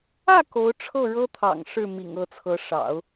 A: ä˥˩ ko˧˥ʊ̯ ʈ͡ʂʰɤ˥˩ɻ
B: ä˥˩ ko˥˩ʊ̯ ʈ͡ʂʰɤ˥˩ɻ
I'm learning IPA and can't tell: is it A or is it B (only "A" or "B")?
A